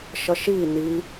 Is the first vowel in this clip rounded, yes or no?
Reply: no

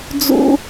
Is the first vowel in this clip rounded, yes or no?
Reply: yes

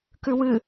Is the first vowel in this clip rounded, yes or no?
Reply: yes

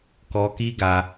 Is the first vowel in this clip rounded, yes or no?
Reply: yes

